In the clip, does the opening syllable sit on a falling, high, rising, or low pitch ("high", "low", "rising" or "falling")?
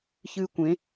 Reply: high